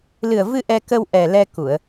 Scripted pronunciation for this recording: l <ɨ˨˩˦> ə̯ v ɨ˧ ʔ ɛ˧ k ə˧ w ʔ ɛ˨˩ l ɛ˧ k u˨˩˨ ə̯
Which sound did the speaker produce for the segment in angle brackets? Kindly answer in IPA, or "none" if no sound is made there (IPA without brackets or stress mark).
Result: ɨ˨˩